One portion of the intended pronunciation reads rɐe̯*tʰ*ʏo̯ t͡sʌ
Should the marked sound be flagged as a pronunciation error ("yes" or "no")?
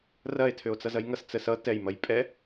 no